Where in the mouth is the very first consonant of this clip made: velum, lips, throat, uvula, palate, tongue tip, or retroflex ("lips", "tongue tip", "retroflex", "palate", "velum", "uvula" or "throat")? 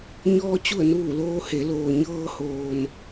palate